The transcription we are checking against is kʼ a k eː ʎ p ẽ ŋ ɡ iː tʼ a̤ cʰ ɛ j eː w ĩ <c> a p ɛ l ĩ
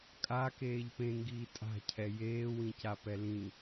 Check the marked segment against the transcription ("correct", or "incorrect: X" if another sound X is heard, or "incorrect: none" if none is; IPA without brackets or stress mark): correct